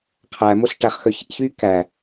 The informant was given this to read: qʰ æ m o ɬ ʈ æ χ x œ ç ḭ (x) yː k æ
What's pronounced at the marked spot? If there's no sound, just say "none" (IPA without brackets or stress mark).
ç